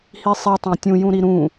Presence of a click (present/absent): absent